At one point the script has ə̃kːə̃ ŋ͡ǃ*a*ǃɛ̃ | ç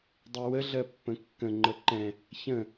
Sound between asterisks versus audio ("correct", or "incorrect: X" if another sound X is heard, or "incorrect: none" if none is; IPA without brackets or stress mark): incorrect: ə